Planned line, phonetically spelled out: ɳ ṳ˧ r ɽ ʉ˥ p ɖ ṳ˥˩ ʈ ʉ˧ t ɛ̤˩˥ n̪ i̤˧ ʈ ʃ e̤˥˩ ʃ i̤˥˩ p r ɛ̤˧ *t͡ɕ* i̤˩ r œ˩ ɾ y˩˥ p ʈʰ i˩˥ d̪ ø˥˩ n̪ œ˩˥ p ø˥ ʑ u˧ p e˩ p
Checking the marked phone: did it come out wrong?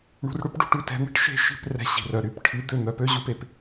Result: yes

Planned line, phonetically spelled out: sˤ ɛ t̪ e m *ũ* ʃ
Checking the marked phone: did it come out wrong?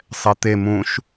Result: no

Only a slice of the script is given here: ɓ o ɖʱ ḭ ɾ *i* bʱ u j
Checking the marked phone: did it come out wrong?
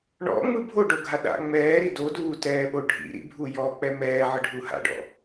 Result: yes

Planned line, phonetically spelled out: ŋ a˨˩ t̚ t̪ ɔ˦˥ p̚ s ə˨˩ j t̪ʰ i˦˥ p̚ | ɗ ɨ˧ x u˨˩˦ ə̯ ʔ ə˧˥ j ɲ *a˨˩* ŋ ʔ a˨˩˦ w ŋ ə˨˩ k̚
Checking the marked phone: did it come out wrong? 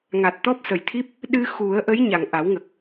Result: no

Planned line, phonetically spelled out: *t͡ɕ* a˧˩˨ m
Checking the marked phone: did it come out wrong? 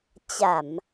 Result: no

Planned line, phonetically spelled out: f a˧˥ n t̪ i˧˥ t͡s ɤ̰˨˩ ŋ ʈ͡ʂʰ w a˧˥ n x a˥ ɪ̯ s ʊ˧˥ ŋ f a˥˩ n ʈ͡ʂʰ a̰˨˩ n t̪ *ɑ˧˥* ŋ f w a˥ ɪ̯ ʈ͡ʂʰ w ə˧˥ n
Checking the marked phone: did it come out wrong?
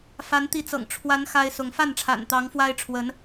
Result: no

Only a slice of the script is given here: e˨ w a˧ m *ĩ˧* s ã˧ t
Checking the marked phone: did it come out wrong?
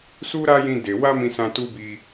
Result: no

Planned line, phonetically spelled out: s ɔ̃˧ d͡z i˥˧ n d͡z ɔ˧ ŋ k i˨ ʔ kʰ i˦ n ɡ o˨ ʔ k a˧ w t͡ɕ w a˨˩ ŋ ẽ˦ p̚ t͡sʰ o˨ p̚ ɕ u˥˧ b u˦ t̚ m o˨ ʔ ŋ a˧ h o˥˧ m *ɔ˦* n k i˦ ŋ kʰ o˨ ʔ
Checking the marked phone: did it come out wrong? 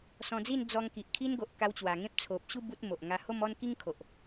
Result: no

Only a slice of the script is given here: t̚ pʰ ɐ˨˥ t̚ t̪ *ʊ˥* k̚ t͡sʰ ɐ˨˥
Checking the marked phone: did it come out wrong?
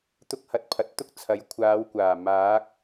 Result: no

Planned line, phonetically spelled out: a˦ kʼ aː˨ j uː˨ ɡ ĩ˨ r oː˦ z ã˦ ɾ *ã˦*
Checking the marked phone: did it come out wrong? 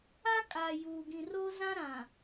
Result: yes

